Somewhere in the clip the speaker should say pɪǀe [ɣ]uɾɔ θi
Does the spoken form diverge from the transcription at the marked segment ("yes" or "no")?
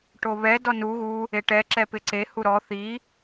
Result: yes